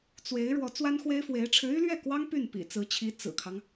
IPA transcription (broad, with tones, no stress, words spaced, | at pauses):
t͡swe˧˥ɪ̯ ɻwɔ˧˥t͡swa˥nxwe˥ɪ̯fwe˧˥ɪ̯ ʈ͡ʂʰɻ̩˧˥y˥lɥɛ˥˩kwɑ˥ŋ py˥˩npḭ˨˩t͡sɹ̩˧˥t͡ɕʰi˧˥ t͡sɹ̩˨˩kʰɑ˦ŋ